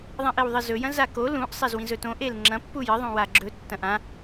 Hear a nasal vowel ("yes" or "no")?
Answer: yes